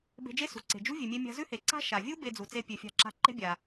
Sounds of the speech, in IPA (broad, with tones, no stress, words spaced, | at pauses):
be̤˧d͡ʒe˥sṳ˩ ǀe̤˩ d͡ʒṳ˥ vʲʉ˩mʲe˧mʲa̤˧ zʉ˥he˩ǀa̤˥ ʃa˩vʲu˥ be˧d͡zu˩t͡se˧ pʲʉ˩fʲa̤˧ǁa̤˧ ǃe̤˥bʲa˩